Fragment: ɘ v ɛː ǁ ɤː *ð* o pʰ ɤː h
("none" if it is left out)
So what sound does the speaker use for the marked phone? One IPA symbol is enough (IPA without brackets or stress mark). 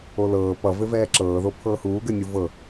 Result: ð